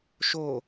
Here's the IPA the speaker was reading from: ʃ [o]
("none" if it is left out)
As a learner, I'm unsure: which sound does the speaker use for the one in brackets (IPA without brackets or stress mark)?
o